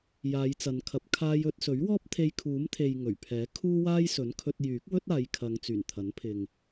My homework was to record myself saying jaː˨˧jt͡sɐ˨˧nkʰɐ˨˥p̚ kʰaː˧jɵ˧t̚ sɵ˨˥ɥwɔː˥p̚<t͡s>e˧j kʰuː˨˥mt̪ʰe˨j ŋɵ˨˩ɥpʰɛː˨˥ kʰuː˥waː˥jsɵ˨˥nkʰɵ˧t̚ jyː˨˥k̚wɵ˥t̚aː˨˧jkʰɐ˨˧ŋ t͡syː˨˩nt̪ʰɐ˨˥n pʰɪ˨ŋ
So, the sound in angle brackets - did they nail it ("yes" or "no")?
no